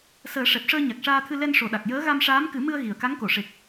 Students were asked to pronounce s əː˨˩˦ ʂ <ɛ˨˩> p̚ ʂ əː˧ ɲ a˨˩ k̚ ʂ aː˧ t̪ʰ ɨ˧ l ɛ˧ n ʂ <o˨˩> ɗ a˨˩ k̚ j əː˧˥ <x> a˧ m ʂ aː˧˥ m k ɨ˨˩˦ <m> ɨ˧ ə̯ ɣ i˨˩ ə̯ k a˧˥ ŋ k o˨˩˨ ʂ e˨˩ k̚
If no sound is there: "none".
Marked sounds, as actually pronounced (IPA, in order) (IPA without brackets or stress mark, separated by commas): ɛ˨˩, o˨˩, ɣ, m